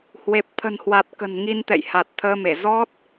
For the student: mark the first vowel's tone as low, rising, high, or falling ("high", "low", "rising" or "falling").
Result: low